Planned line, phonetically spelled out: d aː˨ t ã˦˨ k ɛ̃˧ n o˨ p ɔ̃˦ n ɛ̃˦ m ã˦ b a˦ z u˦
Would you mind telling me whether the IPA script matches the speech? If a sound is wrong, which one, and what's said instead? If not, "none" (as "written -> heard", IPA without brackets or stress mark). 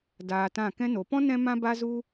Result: none